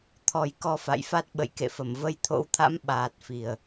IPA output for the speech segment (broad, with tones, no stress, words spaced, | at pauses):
t̪ʰɔ˨˩jkɔ˧fa̰˧˨jfa˦˥t̚ ɓə̰˧˨jkḛ˧˨fə˧˩m və˧jt̪ʰo̰˧˥wt̪ʰa̰˧˥m ɓaː˨˩t̚ fi˨˩ə̯